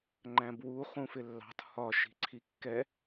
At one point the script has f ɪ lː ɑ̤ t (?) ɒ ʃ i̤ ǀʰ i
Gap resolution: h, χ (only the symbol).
h